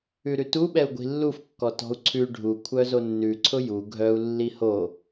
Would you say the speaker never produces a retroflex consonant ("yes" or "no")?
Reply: no